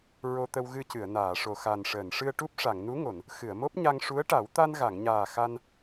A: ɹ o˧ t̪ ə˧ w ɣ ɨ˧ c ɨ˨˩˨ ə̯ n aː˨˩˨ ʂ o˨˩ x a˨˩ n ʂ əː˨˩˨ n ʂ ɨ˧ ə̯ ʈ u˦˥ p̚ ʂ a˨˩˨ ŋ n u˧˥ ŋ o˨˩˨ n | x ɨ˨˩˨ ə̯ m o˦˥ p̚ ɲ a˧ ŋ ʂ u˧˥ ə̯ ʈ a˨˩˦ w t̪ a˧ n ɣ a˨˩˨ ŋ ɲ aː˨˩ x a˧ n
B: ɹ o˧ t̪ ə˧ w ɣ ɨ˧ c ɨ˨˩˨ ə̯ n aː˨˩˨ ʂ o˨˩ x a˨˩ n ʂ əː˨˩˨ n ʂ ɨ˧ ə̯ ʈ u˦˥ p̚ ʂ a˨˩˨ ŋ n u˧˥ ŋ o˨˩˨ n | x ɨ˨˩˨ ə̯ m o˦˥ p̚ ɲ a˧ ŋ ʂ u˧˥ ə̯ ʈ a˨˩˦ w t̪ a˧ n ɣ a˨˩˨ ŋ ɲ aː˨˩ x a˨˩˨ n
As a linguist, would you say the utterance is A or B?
A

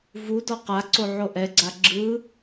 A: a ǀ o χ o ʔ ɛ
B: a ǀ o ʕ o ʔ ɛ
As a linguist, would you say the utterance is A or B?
B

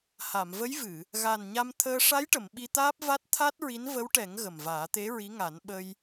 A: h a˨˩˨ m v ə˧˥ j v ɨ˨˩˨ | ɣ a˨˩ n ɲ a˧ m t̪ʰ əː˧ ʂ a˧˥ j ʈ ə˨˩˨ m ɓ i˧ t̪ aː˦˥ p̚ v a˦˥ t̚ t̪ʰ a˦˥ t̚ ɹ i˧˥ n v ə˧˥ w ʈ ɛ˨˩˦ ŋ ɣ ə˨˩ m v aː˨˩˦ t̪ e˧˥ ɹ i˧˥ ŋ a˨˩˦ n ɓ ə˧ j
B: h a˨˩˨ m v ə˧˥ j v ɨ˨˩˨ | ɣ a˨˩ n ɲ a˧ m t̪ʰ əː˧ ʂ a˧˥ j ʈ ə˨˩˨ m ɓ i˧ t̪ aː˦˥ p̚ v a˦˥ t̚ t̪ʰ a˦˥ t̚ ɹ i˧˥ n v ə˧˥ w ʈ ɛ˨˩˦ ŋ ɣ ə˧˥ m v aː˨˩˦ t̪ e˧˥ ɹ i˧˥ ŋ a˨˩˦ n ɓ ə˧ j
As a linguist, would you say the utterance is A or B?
A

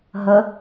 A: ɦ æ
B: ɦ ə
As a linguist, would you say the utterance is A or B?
B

